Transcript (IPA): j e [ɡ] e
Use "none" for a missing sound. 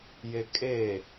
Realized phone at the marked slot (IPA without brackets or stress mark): kʼ